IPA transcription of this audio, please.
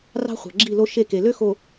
r ɑ̤˦ χʷ ɑ̤˨ ɡ͡ǁ i˦˨ l o˦ ʃ e˦˨ k e˨ l ø˦ x o˨

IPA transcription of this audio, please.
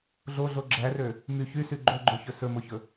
ɮ o ɮ o ɡ͡ǁ æ r ø | m y ç y s y ɡ͡ǃ o ɡ͡ǃ ø ç ɵ s ɵ m o ç ɵ

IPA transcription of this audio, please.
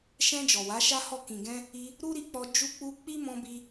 ʃ ɛ̃˧ d͡ʒ ɔ˨ w a˨˦ ʃ a˦ h ɔ˦˨ k ĩ˨ ɡ ɛ̃˧ | i˧ | ɾ u˦ ɾ i˧ k͡p ɔ˧ d͡ʒ u˧ k͡p u˧ k͡p i˦ m ɔ̃˧ b i˧

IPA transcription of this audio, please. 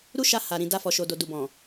ɾ u˦ ʃ a˧ h a˨ ɾ ĩ˨ d a˧ f ɔ˨ ʃ o˨ d o˨ d u˨ b ɔ̃˨

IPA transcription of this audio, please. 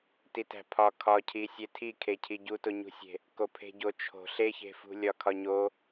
t i t æ̤ pʰ ɒ kʰ ɒ cʰ i sʲ e tʰ i kʰ e cʰ i ɟ u t o ɲ ṳ sʲ e̤ | k o pʰ e̤ ɟ o t͡ʃʰ o̤ ɬ e ç e̤ f ṳ lʲ ɒ kʰ ɒ ɲ o

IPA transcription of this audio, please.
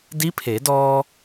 d i˧˥ pʰ e˩˧ d ɔː˧

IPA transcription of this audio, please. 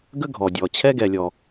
ɡ ə˦ ɡʱ ɔ˩ dʲ ɔ˩ t͡ɕʰ ɛ˦ ɡ ɛ˨ lʲ ɔ˨

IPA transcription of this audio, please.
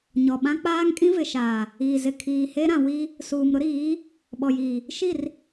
ɲ ɔ˨ ɓ ã˦ k͡p aː˦ ŋ kʼ ĩ˦ v ɪ˨ ʃ aː˨ | iː˨ z ɪ˨ kʰ iː˨ h e˦ ɾ ã˨ w i˦ | s uː˨ m ɾ ʊ˦ ɾ iː˨˦ | ɓ ɔ˨ j iː˨ | ʃ i˦˨ r

